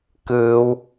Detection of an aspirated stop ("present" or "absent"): absent